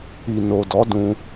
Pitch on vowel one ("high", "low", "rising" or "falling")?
low